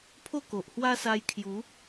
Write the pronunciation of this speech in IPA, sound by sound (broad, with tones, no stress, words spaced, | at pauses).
pʰo˥˧ko˨ʔhwa˦ sa˧jkʰju˨˦